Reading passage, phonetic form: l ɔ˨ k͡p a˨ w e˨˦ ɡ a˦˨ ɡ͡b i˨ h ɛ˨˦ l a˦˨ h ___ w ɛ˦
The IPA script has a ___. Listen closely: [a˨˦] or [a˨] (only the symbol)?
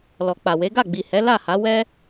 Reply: a˨˦